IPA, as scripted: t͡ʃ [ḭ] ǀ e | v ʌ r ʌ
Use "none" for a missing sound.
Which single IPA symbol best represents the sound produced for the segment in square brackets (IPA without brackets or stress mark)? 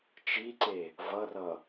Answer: i